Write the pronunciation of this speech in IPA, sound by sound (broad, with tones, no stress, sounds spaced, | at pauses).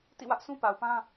t ḭ˦˨ w ä˦ ʔ sʰ ũ˦ p a˨ ʊ̯ p ã˦